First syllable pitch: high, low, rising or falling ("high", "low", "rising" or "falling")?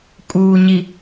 low